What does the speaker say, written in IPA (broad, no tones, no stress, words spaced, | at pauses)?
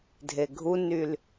dʱeɡʱunyl